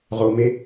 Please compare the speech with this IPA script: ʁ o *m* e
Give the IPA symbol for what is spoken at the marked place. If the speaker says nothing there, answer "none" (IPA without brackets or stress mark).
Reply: m